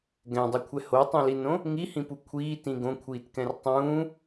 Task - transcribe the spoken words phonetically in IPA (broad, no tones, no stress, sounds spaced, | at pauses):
ɡ ɛ̃ dˤ u kʷʰ ɛ h o tˤ ũ l i n õ | ŋ i h ĩ p u kʷʰ iː t ĩ ɡ õ kʷʰ iː t k ɛ̃ r tˤ ũː